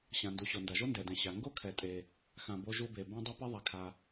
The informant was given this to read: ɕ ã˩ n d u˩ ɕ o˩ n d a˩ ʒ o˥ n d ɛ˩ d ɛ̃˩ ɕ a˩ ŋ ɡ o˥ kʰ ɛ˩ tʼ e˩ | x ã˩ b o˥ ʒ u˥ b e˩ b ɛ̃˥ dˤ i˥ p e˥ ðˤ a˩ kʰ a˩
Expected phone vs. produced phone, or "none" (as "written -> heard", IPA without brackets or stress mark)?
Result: none